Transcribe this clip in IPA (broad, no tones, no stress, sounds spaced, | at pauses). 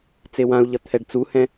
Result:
t͡s e w ã u̯ ʎ ʌ t̪ʰ ɛ ɖ t͡s u h ɛ̃